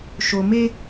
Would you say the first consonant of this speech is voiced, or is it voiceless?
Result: voiceless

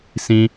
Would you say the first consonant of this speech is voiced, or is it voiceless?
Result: voiceless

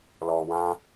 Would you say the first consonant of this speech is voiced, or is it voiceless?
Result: voiced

